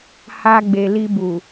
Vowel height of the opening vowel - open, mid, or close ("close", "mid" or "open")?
open